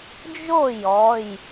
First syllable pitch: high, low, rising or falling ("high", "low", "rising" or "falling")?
falling